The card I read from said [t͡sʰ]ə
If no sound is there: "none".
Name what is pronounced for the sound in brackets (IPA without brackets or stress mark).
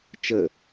t͡ʃ